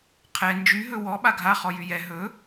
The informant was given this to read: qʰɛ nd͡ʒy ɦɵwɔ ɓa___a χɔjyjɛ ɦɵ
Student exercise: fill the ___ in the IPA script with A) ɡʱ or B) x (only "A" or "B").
A